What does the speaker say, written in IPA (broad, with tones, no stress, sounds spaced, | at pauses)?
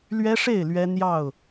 l ɥ ɛ˦ ʂ e˥˨ ɪ̯ l ɥ ɛ˦ n̪ j ɑ˥˨ ʊ̯